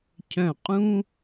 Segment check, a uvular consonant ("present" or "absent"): present